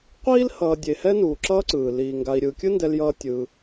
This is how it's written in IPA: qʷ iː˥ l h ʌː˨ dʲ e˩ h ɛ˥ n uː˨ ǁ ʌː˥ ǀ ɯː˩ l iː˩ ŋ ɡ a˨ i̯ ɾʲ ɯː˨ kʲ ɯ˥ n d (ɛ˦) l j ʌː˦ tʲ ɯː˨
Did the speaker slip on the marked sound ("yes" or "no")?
no